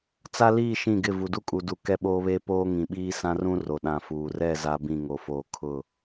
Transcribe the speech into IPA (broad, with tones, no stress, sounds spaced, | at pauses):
t͡s a˦ l iː˦˨ ʃ ĩ˦˨ ɡ ɪ˦˨ v u˨ d u˦ kʼ u˨ d u˨ k ɛ˦ ɓ oː˦ β eː˦ p oː˦ ŋ ĩ˨ ɓ iː˦ s ã˦ r ũ˦ r o˨ ɗ ã˨ f uː˨ r ɛ˦˨ z a˦ b ĩ˦˨ ŋ o˨ f oː˨ kʰ ʊ˦˨